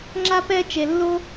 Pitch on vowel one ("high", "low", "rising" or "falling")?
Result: high